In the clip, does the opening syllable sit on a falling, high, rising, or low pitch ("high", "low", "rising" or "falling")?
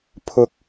high